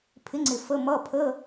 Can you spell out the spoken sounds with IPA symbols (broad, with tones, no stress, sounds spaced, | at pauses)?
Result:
pʰ ɪ˨˥ ŋ͡ǀ ɪ˨ f ə˧˥˧ m ʌ˧˥˧ pʰ ə˧˥˧